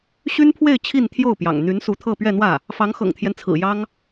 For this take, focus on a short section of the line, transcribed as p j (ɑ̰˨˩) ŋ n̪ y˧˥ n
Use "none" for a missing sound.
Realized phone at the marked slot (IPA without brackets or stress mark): ɑ̰˨˩